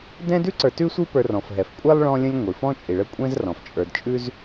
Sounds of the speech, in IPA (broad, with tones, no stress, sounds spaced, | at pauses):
d ɛ̃˦ d ʉ˥ ǀ ə˞˨ t ʉ˦ sʷ i˦ p ə˞˨ r ɔ̃˩ f ɦ ɛ˩ f kʷʼ ɛ˥ lˠ ɭ ɔ̃˦ lʲ ə̃˦ lʲ ŋʷ i˩ f ɔ̃˦ t͡ʃʼ i˩ ɭ ə˦ kʷʼ ɛ̃˦ z r ɔ̃˩ f t͡ʃʼ ə˞˨ d t͡ʃʼ ʉ˦ z